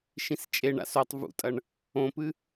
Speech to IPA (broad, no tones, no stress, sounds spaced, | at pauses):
ʃ ĩ s t͡ʃʼ e ɳ a̰ s o tˤ v ṵ tʼ ɐ ɳ | õ p ɨ